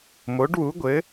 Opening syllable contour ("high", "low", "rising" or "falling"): rising